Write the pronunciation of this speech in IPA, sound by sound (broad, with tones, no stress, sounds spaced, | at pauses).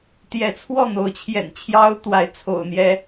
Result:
t̪ j ɛ˨˦ t͡sʰ w ɔ˥˨ n̪ o˨˦ ʊ̯ t͡ɕʰ j ɛ̰˨˩ n t͡ɕʰ j ɑ˦ ʊ̯ t̪ w a˨˦ ɪ̯ t͡sʰ o̰˨˩ ʊ̯ n̪ j ɛ˨˦